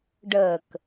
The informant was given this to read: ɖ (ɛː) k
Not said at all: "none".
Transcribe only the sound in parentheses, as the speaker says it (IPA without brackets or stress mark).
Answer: əː